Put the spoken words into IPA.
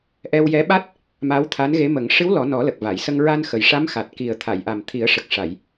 ʔ ɛ˧ w j ɛ˧˥ ɓ a˦˥ t̚ | m a˧˥ w t̪ʰ a˧˥ n ɣ e˧˥ m ə˨˩˦ ŋ ʂ ɨ˧˥ w l ɔ˨˩˦ n ɔ˨˩˦ l ə˨˩ k̚ v a˨˩˨ j s ə˧ ŋ ɹ a˧ n x ə˨˩ j ʂ a˧˥ m x a˨˩ t̚ k i˨˩ ə̯ t̪ʰ a˨˩˨ j ʔ a˨˩ m t̪ʰ i˨˩˦ ə̯ ʂ ə˨˩ k̚ ʂ a˨˩˨ j

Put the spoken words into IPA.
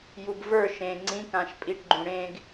j u b v ə˞ ʃ ẽ ŋ͡ǀ ĩ k ã ʃ pʼ i ʈ ɡ͡ǃ ũ ɽ ẽ ɡ

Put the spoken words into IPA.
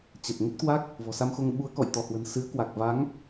t͡ɕ ə˨˩ t̚ ŋ ə˦˥ t̚ k w a˦˥ k̚ | v ɔ̤˨˩ s a˧ m x o˧ ŋ ɓ u˨˦ ə̯ k ɔ̰˧˨ j t̪ ɔ˧˩ h w ə̤˨˩ n s ɨ˨˦ ə̯ k w a˨˩ k̚ v a˨˦ ŋ

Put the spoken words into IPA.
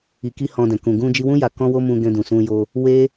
i˧ k i˦ h ɔ̃˧ d ɛ̃˨ k ũ˨ ɡ ũ˧ d͡ʒ i˧ w ũ˦ j a˧ k ɔ̃˦ w o˦ m ũ˧ ɡ ɛ̃˧ d ũ˨ s ũ˧ j o˧ | w e˦

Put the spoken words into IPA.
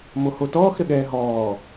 m o h o t ɔː x ɾ ɘ ɠ ɛː ɦ ɔː

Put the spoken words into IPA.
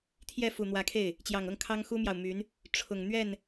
t̪ʰ j ɛ˥˩ f u˨˩ n̪ w ä˧˥ kʰ e˥˩ ɪ̯ | t͡ɕ j ɑ˨˩ ŋ ɤ˥˩ ŋ kʰ ɑ˥ ŋ x u˥ m j ɑ˨ ʊ̯ m y˧˥ n | ʈ͡ʂʰ ʊ˨˩ ŋ n̪ ɥ ɛ˥˩ n

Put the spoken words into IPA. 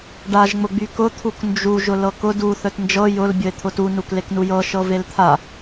ɖ a ʒ ŋ͡m ʊ ɡ͡b y k ʊ t̪ʰ u k n d͡ʒ u ʒ ʊ l ɤ k ʊ d u θ œ t n d͡ʒ ɤ j ʊ l bʲ ʊ e̯ t̪ʰ ʊ t u n u k l e k n u j ɤ ʃ ɤ v e l t̪ʰ a

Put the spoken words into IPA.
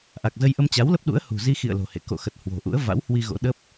ʔ a˨˩ k̚ z ə˧ j ʔ ə˧ m t͡ɕ a˨˦ w l ə˦˥ p̚ ɗ ṵ˧˥ ə̯ h ṳ˨˩ z i˧ x ḭ˧˨ ə̯ l o̤˨˩ h ḛ˧˨ k o̰˧˨ x ə˨˩ t̚ h w o̤˨˩ ʔ ṵ˧˥ ə̯ v a̰˧˥ w h w i˧ ɣ o̰˧˥ ɗ ə˦˥ p̚

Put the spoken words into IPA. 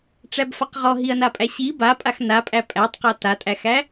ʈ͡ʂ æ b f a q ʁ ɔ ɦ i ɐ̯ n a pʼ æ ɕ i b a pʼ a x n a pʼ æ pʼ æ tˤ q a t a tʼ æ x æ

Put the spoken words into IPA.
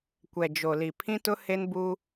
kʷ ɛ˨ d͡ʒ o˨ l i˨ pʰ ĩ˦ t ʊ˦ h e˦ n b u˦

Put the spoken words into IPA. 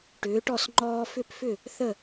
ʈ ʏː˩˥ ʈ ɔ˥˩ s ŋ͡ǃ ɔː˧ f ʏ˥˩ p f ʏ˥˩ | θ ə˥˩

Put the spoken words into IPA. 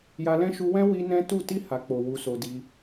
j a˧ l ɛ̃˦ ʃ u˧ w ɛ̃˦ w i˦ n ɛ̃˦ t u˦˨ t i˧ h a˨ k͡p o˨ w u˧ s o˧ d i˧

